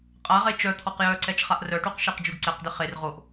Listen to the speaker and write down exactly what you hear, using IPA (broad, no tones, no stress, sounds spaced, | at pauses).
qʼ a ʁ e t͡ʃ œ t̪ʰ ɔ q j œ ǀ ɛ t͡ʃ χ a ʔ r œ ʈ u q ʃ e q d͡ʒ u ɖ ǀ ɛ q d ɪ χ e r ʁ o ʔ